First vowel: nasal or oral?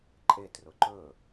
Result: oral